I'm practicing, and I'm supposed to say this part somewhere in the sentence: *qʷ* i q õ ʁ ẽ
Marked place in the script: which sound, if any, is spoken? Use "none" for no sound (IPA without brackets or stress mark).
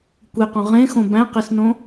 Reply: kʷ